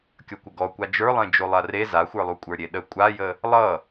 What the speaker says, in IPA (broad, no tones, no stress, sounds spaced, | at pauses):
kʲ ʌ kʷ ə ɡ ɔ kʷ a d͡ʒ ə˞ lˠ ẽ d͡ʒ o lˠ a r e z a xʷ ə˞ lˠ u kʷʼ ə˞ ɾʲ e ɗ ə kʷʼ a j ə | lˠ ʌ